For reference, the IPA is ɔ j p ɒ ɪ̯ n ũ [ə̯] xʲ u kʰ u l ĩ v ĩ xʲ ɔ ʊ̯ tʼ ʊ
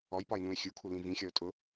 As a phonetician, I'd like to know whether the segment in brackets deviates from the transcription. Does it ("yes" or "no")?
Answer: yes